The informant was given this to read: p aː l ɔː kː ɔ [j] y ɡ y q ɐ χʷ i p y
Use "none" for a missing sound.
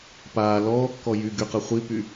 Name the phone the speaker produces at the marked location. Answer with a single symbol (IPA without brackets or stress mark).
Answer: j